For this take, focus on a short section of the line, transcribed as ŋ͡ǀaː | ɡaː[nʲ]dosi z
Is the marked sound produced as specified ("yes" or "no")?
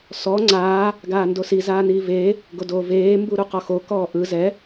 no